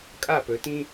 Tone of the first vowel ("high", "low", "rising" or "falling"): falling